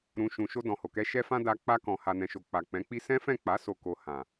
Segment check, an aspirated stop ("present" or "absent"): absent